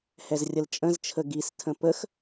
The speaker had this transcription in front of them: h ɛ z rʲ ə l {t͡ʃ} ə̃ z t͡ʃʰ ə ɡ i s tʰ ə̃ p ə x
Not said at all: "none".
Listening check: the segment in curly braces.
t͡ʃʼ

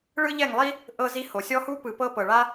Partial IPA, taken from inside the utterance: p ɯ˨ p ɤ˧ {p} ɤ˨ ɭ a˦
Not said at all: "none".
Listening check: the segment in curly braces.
p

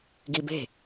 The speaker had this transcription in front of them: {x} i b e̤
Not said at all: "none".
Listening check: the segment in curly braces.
ɡ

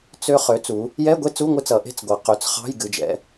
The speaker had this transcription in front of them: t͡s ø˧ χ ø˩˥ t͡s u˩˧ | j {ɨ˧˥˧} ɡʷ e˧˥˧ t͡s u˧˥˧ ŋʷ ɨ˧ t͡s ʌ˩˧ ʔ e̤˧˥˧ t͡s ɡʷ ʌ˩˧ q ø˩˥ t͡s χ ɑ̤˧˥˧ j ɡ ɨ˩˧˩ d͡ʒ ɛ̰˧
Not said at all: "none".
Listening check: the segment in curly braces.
ɛ˧˥˧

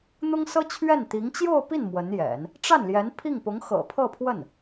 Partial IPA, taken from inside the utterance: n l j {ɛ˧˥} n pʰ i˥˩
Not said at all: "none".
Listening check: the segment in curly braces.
ɛ˧˥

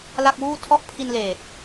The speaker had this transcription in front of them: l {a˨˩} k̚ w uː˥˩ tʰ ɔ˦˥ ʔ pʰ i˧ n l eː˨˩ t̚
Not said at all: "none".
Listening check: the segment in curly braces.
a˥˩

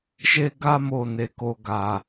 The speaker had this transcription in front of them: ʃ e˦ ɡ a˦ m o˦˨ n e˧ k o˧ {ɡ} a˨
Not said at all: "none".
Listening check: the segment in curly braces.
ɡ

